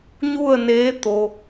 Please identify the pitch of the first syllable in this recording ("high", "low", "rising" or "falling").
falling